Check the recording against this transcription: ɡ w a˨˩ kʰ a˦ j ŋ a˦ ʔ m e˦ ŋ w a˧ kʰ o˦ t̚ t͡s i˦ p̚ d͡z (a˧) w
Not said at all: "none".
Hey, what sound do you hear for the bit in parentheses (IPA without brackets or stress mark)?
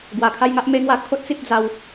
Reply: a˧